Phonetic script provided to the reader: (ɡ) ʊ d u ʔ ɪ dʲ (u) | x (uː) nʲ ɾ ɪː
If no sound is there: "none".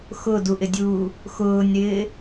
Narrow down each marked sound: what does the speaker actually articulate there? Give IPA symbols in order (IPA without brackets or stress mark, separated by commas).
x, uː, ʊː